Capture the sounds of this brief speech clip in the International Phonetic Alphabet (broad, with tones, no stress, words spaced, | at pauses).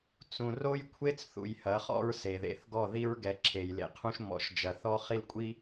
t͡sũ˨ ro˦jkʷʰe˦t͡sθṵ˨j hɐ˨˦χɔ̰˦ɹse˨ðḛ˨θ ɡɔ˦˨ði˦ɹ ɡɛ˨˦ǁʰe˨jlḛ˨qʰũ˦ʃ mɔ̰˨ʃd͡ʒɐ˨ θɔ˦χi˦l kʷʼi˦